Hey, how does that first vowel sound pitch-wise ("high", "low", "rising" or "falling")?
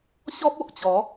high